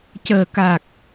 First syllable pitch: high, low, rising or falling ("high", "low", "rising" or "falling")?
low